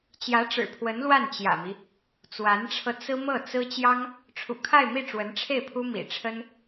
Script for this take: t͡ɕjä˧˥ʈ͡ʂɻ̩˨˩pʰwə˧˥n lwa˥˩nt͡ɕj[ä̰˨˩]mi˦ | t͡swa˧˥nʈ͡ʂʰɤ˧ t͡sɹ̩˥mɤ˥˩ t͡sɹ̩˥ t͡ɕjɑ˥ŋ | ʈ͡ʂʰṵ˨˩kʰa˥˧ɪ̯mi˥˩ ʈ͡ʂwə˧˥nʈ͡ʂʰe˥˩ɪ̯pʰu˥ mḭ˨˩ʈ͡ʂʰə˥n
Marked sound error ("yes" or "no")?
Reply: no